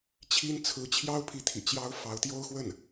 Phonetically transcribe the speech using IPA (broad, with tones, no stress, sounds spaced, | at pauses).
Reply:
t͡ɕʰ i˥ n t͡sʰ ɹ̩˧˥ t͡ɕʰ j ɑ˥ ʊ̯ pʰ i˧˥ t̪ʰ ḭ˨˩ t͡ɕ j ɑ˥ ʊ̯ f ɑ˧˥ ʊ̯ t̪ j o˥ ʊ̯ x w ə˥˩ n